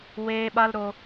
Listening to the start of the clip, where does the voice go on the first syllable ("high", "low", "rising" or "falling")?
high